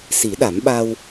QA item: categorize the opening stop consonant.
implosive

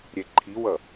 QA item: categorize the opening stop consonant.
click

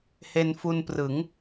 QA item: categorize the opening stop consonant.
plain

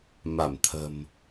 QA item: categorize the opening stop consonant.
aspirated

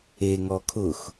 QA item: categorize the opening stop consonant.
aspirated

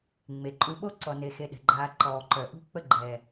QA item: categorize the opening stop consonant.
click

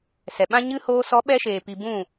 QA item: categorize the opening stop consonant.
implosive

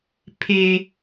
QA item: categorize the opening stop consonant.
aspirated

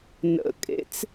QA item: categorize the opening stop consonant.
ejective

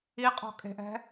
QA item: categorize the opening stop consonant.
ejective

